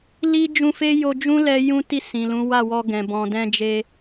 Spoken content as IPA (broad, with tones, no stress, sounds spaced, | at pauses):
l i˦ d͡ʒ ũ˦ f e˦ j o˧ d͡ʒ ũ˦ l ɛ˧ j ũ˦ t i˦˨ s ĩ˨ l ũ˨˦ w a˦˨ w ɔ˧ ɡ ɛ̃˨ b ɔ̃˨ d ɛ̃˧ d͡ʒ e˧